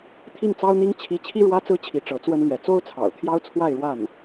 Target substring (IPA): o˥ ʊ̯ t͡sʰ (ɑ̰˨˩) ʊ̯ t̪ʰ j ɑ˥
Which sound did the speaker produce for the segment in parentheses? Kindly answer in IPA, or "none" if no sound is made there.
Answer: ɑ̰˨˩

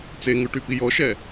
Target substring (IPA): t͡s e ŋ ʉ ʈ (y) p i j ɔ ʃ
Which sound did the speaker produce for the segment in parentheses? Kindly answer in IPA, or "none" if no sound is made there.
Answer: y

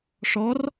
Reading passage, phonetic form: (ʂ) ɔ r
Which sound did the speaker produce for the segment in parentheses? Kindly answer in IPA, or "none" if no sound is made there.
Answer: ʂ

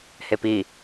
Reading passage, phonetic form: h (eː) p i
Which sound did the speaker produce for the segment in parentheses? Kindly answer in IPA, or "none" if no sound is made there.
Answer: e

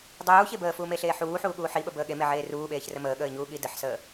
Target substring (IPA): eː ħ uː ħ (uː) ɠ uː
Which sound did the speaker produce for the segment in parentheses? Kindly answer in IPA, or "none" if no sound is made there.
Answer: uː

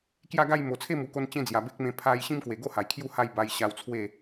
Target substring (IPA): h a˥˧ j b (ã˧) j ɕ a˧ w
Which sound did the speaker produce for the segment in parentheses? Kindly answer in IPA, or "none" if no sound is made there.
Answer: a˧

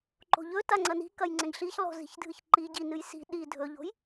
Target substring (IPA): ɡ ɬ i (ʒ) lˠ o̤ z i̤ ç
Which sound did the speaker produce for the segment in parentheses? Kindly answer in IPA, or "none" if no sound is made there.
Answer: ç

